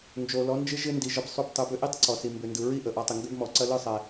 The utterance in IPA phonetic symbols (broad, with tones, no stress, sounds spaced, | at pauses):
n d͡ʒ o˨ l ɔ˨˦ n d͡ʒ ɪ˦ ʒ ɪ˦ n d i˨ ʒ ɯ˨ b sˤ u˨ b tˤ ɯ˨ b ʏ˦ ʔ i˦ tˤ ǀ ɔ˨ s i˨ m b ʏ˨ n d ɯ˨ ɹ i˦ ʔ ə˨ ʔ ɔ˨˦ tˤ ɪ˨ ŋ ɡ ʏ˦ b m ɔ˨ ǀ ɐ˦ l ɯ˦˨ sˤ ɛ˨